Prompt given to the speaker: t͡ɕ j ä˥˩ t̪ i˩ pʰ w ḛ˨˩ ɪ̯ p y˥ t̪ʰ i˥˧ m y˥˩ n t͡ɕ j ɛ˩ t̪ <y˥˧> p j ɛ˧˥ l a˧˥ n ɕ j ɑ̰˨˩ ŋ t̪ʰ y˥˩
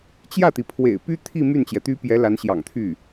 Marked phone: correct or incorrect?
incorrect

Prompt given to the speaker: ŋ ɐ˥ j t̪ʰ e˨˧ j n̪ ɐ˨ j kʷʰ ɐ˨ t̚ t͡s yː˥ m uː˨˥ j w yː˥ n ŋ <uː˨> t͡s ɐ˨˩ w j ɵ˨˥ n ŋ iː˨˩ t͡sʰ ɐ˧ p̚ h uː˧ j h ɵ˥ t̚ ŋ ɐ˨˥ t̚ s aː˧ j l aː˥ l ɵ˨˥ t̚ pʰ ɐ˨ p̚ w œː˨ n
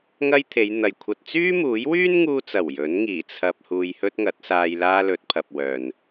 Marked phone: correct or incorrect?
incorrect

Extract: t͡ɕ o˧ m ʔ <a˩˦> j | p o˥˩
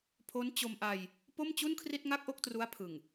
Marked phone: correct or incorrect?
incorrect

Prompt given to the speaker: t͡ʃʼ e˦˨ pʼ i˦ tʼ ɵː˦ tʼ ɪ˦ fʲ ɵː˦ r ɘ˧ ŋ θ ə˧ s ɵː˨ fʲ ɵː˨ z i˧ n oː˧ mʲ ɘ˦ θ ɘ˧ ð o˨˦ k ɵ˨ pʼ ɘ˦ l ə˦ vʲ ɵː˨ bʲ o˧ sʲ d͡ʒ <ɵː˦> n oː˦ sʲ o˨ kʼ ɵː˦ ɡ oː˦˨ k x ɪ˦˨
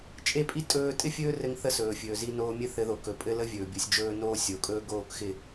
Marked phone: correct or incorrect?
correct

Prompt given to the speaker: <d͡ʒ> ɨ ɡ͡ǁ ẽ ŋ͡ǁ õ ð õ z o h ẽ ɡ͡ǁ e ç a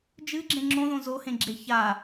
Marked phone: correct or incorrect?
correct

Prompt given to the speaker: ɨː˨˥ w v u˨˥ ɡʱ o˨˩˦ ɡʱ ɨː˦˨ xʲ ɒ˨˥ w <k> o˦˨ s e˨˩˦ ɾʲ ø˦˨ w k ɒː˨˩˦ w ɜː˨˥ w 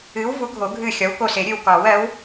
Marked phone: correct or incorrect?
correct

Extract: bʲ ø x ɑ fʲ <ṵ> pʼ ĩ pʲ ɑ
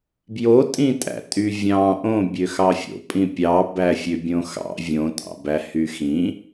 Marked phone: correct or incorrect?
incorrect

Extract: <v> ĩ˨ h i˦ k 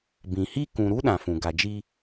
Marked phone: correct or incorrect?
incorrect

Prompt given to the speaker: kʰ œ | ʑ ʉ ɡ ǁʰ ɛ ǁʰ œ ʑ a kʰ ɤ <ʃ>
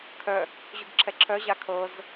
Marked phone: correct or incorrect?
incorrect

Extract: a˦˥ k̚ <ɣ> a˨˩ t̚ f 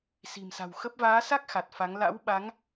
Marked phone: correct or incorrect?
incorrect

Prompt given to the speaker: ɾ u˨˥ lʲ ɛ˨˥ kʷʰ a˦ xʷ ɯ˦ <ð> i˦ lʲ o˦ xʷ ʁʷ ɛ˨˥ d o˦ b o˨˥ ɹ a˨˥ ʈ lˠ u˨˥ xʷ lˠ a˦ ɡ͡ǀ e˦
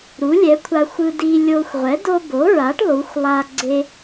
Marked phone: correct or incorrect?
incorrect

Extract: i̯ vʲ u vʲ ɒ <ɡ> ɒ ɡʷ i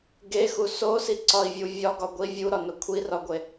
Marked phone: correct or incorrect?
correct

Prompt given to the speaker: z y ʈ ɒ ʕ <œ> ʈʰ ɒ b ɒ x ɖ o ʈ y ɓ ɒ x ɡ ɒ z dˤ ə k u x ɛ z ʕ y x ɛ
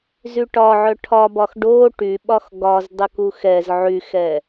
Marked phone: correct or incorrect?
correct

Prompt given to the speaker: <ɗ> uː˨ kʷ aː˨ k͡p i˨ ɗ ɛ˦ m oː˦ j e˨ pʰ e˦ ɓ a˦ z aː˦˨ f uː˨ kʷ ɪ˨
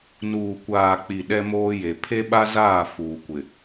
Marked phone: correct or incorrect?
incorrect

